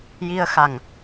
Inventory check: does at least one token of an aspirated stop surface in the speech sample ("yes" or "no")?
no